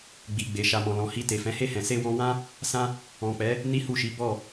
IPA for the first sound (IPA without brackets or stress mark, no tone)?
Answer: ɡ͡b